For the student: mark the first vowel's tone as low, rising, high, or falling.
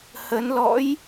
rising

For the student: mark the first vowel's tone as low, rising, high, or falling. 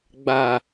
low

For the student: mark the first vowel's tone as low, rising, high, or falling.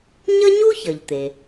high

